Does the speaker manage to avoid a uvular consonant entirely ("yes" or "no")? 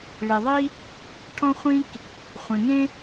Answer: no